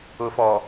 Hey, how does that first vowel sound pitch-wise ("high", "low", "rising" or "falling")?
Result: low